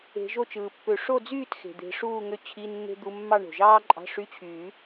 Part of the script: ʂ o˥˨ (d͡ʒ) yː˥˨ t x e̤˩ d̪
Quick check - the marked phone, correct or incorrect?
incorrect